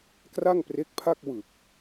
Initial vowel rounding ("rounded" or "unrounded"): unrounded